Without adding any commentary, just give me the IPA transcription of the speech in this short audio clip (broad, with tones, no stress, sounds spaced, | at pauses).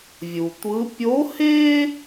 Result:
vʲ u˩ tʷ ɯ˧˥ pʲ o˧˥ h e˥